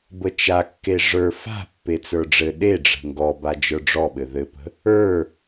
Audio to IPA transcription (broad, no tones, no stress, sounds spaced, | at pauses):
b ə t͡ʃ a kː e ʐ ə˞ f a̤ pː e t͡s ə˞ ɖ͡ʐ ɘ ɗ e ɖ͡ʐ ə̤ ŋ ɡ ɔ b a d͡ʒ ə˞ ɖ͡ʐ ɔ ɓ ɘ ð ɘ p ə̤ | ə˞